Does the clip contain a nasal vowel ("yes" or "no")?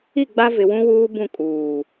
yes